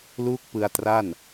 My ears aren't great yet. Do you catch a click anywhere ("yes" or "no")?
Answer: no